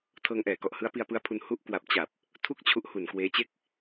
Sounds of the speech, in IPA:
tʰ ɤː˧ ŋ ʔ ɛː˨˩ k ɔ˨˩ ʔ h ɯ˦˥ a̯ p i˧ a̯ p ɯ˦˥ a̯ pʰ u˧ n h u˦˥ ʔ k w a˨˩ p̚ t͡ɕ a˨˩ p̚ | tʰ u˥˩ k̚ t͡ɕʰ u˦˥ ʔ h u˨˩ n k w eː˦˥ t͡ɕ e˥˩ k̚

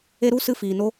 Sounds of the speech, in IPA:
e˦ ɾ u˦ s ɨ˦ f iː˧ n o˦

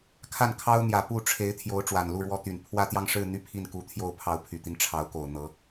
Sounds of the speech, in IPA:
kʰ a˥˩ n kʰ ɑ˥ ʊ̯ n̪ j ä˨˩ p u˥˩ ʈ͡ʂʰ e˧˥ ɪ̯ t̪ʰ j o˧˥ ʊ̯ ʈ͡ʂ w a˨˩ n l u˥˩ ɻ w ɔ˥ t̪ y˨˩ n pʰ w ä˥˧ t̪ j ɑ˥˧ ŋ ʂ ɻ̩˥˧ n̪ y˥˧ pʰ i˥˩ n k u˧˥ t̪ʰ j o˥˩ ʊ̯ pʰ ɑ˧˥ ʊ̯ pʰ y˨˩ t̪ i˦ n ʈ͡ʂʰ ɑ˧˥ ʊ̯ k o˨˩ ʊ̯ n̪ ɤ˧˥

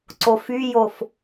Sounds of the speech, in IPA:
ǀ o f y j o f

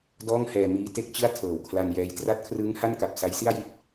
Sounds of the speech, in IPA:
d ɔː˥˩ ŋ h ɛː˧ m iː˦˥ t e˦˥ k̚ t͡ɕ ɯ˥˩ a̯ tʰ ɤː˨˩ w kʰ l a˧ n j ɛː˧ j t r a˦˥ t̚ kʰ r ɯː˦˥ ŋ h a˥˩ n k a˨˩ p̚ s a˦˥ j s i˥˩ a̯ j i˥˩ t̚

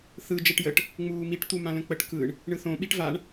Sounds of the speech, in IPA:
θ ɯ d͡ʒ ɛ ʈ j ə ʈ | ŋ͡m uː m i ʈ t̪ u m ã l ə̃ k͡p ə ʈ k ɯ ɳ | ɳ ɯ θ õ ɓ i ʈ v a ɳ

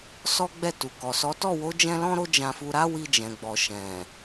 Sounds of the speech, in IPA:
s ɔ˦ ɡ͡b ɛ˦˨ t u˨ k ɔ˨ s ɔ˨˦ t ɔ˦˨ w o˨˦ d͡ʒ ɛ̃˧ l ɔ̃˦ ɾ o˦ d͡ʒ ã˧ f u˧ ɾ a˦ w i˧ d͡ʒ ɛ̃˨ ɡ͡b ɔ˨ ʃ ɛ̃˨

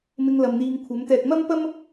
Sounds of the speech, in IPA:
m ɪ˧ ŋ l ɐ˨ m n̪ iː˧ ŋ kʷʰ ɐ˨˥ m t̪ ɛː˧ k̚ m ɐ˥ m p ɐ˥ m

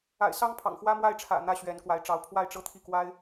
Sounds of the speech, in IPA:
a̰˨˩ ɪ̯ s ɑ˥ ŋ pʰ ɑ̰˨˩ ŋ x w ä˥ m w a˥˩ ɪ̯ ʈ͡ʂʰ ä̰˨˩ n̪ ä˥ ɕ ɥ ɛ˧˥ n k w a˧˥ ɪ̯ ʈ͡ʂ ɑ˧˥ ʊ̯ pʰ w a˥˧ ɪ̯ ʈ͡ʂ ɤ˥˧ t̪ʰ i˥˩ k w a˥ ɪ̯

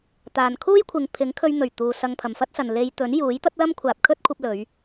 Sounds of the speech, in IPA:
t̪ aː˨ n kʰ uː˥ j kʷʰ ɪ˨ ŋ pʰ ɪ˨˥ ŋ kʰ ɵ˧ ɥ n̪ ɵ˨˩ ɥ t̪ uː˨ s ɐ˧ ŋ pʰ ɐ˨ m f ɐ˥ t̚ s ɐ˨ n l e˧ j t̪ ɵ˨˥ n j uː˨˥ j t̪ ɐ˥ t̚ l ɐ˥ m kʷʰ aː˨ p̚ kʰ ɵ˥ t̚ kʷʰ ɐ˧ p̚ l ɵ˨˧ ɥ

